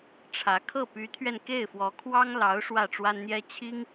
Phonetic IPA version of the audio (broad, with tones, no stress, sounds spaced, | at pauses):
ʈ͡ʂʰ ä˧˥ kʰ ɤ˥˩ p y˧˥ t̪ʰ ɥ ɛ˧ n k e˥˩ ɪ̯ f w ɔ˧˥ kʰ w ɑ˥ ŋ l ɑ˧˥ ʊ̯ ʂ w ä˥˩ ʈ͡ʂ w a˥ n n̪ j ɛ˥ t͡ɕʰ i˥ ŋ